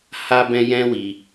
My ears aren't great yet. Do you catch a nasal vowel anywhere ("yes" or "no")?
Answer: yes